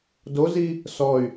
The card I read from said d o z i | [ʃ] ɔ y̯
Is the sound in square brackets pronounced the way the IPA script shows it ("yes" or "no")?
no